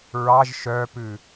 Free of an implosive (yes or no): yes